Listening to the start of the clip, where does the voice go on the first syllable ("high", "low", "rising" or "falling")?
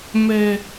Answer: low